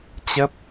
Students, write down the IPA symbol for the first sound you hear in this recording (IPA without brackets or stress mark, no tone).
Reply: t͡ɕ